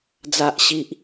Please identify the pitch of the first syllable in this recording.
low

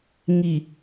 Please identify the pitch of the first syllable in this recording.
low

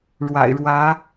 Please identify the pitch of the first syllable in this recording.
low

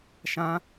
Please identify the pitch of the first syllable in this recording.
high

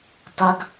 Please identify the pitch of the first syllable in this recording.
high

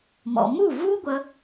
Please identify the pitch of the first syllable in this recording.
low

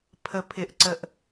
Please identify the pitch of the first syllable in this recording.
low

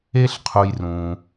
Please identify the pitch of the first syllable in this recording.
high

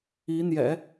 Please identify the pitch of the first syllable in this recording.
rising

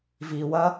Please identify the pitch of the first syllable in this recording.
low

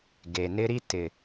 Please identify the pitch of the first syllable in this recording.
low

